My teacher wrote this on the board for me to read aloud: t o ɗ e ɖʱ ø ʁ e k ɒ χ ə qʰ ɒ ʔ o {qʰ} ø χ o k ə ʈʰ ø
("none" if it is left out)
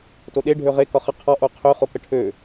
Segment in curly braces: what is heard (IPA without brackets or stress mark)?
qʰ